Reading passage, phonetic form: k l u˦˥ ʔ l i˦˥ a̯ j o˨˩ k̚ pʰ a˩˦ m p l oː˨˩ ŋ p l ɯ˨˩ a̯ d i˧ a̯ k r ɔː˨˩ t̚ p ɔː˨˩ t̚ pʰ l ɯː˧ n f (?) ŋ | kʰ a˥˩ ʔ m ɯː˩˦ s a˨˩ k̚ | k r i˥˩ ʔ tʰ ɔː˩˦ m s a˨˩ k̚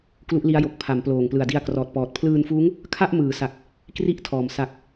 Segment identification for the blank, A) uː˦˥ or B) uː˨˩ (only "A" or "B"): A